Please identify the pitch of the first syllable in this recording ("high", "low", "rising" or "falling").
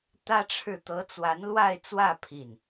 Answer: high